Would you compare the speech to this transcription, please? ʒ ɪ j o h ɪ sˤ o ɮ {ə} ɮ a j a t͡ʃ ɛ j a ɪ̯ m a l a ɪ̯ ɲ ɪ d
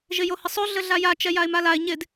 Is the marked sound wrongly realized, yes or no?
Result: no